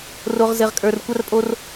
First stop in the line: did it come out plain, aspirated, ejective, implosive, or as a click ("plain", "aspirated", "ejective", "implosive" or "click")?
ejective